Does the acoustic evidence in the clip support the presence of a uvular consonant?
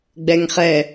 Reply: yes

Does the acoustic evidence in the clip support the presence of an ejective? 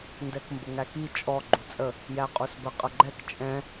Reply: yes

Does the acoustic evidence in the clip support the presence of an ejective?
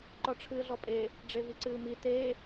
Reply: yes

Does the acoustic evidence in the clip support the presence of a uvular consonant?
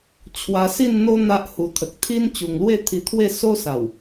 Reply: no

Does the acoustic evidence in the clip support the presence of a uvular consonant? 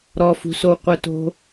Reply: yes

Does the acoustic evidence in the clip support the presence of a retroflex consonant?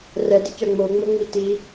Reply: no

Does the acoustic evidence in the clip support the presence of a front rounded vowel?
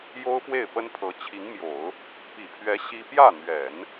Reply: no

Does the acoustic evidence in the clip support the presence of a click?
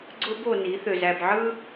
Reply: yes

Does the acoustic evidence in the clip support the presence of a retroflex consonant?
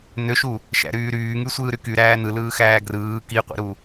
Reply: no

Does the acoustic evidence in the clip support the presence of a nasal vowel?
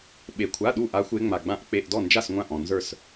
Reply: yes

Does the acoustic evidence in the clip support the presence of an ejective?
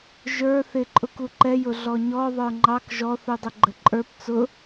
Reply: yes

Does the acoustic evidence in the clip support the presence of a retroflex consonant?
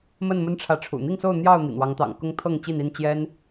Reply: yes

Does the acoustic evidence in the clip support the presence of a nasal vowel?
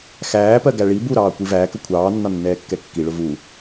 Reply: no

